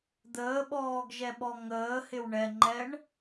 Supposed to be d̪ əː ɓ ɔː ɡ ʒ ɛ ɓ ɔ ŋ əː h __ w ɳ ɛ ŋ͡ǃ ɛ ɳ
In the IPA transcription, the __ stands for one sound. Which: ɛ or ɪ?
ɪ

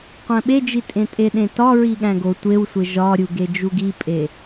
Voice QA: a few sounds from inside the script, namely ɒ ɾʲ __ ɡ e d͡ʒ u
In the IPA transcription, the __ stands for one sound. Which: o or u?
u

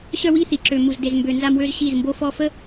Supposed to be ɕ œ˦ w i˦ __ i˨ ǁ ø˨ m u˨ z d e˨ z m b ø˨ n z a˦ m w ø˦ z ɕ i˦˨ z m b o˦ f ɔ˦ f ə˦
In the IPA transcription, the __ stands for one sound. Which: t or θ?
θ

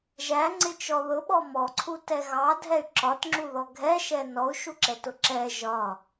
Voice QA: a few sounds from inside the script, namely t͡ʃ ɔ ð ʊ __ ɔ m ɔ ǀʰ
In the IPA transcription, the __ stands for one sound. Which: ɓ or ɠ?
ɓ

